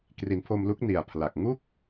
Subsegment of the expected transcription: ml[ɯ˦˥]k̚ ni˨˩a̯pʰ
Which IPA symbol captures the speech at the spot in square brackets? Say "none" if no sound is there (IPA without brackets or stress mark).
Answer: u˦˥